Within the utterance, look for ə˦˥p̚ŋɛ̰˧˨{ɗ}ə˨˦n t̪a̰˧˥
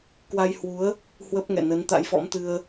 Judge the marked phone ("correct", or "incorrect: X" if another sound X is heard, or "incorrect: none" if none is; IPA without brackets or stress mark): incorrect: n